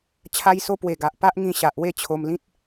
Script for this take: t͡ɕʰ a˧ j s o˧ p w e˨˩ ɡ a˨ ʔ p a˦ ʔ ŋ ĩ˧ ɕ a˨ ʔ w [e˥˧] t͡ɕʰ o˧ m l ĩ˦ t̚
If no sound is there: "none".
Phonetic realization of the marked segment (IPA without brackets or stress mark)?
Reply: e˥˧